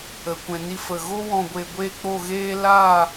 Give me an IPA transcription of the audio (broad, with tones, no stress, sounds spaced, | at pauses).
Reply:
ə˨ kʷ ɛ̃˨ n i˧ f ə˨ ɣ o˧ w ɔ̃˨ ɡʷ e˨ ɡʷ e˦˨ k͡p o˦˨ ɣ eː˦ l aː˦˨